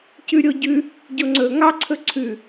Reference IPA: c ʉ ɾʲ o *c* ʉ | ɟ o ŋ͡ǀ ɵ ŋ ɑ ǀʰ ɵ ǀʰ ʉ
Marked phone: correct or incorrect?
incorrect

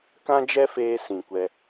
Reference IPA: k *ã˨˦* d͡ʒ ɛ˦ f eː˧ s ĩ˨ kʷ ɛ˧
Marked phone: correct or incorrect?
incorrect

